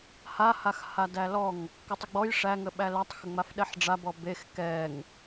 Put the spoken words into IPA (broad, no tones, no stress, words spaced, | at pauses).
hahax hadælɔŋ | kətˤəɡ͡bɔj ʂæŋəɓæ lætˤ xəŋ͡mafɗɛħɖ͡ʐa bɔbex kɛŋ